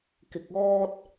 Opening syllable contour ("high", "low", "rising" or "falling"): low